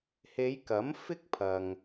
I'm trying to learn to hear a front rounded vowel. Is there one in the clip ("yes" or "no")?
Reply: no